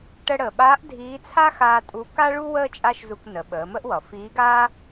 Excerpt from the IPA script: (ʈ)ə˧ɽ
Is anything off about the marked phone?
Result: no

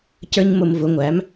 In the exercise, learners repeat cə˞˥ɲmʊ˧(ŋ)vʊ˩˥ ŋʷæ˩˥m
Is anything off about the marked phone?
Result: yes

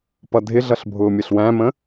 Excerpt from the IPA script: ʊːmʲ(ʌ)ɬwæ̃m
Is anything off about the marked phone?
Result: no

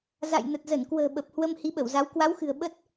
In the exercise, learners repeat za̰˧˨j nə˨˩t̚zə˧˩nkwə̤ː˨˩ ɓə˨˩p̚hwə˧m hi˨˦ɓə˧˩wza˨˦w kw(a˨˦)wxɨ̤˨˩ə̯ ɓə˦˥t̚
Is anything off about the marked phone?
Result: no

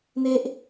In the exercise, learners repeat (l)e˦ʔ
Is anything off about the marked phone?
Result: yes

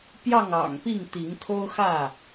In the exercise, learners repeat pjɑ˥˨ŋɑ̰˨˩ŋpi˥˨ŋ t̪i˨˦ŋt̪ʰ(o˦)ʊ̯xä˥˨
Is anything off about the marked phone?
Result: no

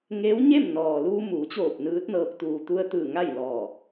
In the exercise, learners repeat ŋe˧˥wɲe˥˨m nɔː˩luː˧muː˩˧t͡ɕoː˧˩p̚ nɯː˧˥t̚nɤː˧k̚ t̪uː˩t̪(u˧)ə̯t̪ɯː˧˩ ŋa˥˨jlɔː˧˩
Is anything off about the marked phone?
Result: no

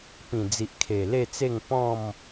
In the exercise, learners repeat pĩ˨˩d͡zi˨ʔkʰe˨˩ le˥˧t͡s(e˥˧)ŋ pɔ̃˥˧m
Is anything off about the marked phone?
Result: no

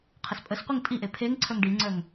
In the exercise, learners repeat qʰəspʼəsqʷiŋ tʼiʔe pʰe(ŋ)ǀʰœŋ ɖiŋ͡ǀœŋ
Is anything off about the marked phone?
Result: no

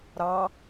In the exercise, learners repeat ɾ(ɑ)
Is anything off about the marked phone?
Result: no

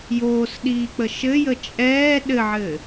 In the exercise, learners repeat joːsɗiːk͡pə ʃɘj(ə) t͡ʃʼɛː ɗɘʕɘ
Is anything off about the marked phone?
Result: no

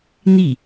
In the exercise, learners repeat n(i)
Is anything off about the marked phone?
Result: no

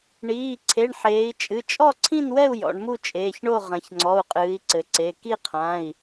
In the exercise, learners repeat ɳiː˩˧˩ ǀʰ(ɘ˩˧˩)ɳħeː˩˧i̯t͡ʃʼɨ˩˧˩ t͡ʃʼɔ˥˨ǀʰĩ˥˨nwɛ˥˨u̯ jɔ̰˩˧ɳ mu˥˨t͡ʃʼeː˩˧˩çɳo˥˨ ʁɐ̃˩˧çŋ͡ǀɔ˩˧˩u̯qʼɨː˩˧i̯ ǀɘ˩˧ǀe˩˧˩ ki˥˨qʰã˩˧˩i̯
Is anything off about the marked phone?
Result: yes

